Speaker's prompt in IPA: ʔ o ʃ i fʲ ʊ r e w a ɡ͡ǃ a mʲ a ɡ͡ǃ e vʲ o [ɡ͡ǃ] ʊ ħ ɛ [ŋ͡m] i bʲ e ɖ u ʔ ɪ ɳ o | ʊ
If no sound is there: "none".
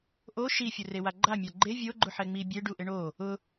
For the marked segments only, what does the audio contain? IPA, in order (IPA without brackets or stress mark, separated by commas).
ɡ͡ǃ, ŋ͡m